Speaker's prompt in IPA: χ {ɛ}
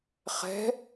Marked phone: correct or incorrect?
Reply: incorrect